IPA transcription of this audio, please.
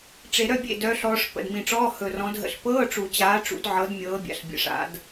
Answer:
ʈ͡ʂe˨˩˦ɾœ˧˥˧bʲḛ˥˩ dœ˨˦ɬɔː˨˦ʂ pə̰˨˩dmĩ˨˩ʈ͡ʂɔː˧˥˧ hɵ˨˩ rɔ̃˨˦dɦə̰˨˦ɬ pɤː˧˥˧ʈ͡ʂu˨˩˦t͡ɕaː˨˦ʈ͡ʂṵ˨˩˦d ʕɤ˨˦d mʲɤː˨˦bʲa̰˨˩ɬbʲə̰˨˩ ʂa̰˨˩˦d

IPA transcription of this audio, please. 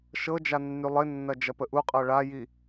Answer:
ʃɤd͡ʒa nːylˠɪnːɐ d͡ʒɐpəʔuqʼɤ ɭaji

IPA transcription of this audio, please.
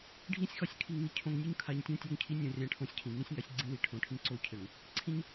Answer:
ɖʱĩ˦sʲxɒ˦sʲ kʰi˨ŋni˨cʰõ˨ŋnʲo˦ɲ kʰa˨ɲ tʲã˦tʲɒ˦˨ŋcʰi˦ nʲõ˦rʲã˦ʈʰõ˦sʲcʰĩ˨ ŋĩ˦sʲ ŋa˦sʲɡ͡ǀĩ˦ wi˨ ʈʰõ˨ʈʰĩ˦ǀo˦ cʰɘ˨ŋ | ǀʰĩ˦ɲ

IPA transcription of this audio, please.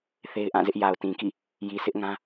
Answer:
θe˦ɪ̯ʔã˦˨zɪ˦ʔ ja˨ʊ̯tĩ˨kḭ˦˨ | ji˨sʰɪ˦ʔŋã˦

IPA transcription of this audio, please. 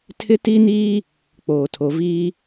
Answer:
tʰɪ˦ti˦niː˦ | k͡poː˨tʰo˨viː˦

